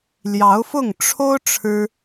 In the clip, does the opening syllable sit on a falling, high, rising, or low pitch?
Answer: rising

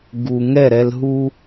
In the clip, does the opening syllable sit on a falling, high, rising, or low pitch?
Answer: low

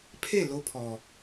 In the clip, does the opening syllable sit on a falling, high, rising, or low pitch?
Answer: falling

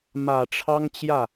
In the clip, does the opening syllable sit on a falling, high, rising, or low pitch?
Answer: low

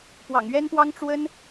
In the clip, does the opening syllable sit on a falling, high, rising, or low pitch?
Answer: low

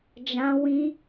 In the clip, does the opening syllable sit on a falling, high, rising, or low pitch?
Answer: high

